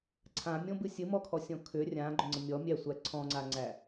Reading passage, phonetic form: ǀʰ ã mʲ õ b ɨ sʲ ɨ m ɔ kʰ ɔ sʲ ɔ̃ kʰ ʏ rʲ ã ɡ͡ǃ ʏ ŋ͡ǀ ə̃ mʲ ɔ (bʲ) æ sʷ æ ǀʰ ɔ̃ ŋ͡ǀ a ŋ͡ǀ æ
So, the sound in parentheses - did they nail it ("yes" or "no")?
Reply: no